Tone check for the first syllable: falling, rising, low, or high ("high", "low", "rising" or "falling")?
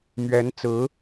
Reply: rising